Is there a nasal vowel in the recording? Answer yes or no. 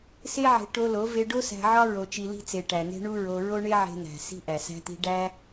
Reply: no